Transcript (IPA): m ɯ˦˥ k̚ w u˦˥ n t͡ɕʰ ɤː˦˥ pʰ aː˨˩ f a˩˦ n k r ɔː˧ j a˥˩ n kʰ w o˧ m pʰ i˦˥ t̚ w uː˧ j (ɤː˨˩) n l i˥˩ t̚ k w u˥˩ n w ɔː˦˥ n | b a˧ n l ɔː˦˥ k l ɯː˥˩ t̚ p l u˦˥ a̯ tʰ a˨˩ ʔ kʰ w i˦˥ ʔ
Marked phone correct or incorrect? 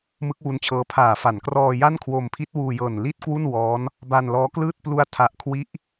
correct